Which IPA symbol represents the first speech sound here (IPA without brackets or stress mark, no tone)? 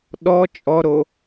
ɗ